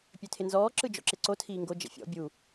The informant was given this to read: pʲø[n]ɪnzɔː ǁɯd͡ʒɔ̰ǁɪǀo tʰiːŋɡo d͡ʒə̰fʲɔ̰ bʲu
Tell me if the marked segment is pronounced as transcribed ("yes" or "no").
no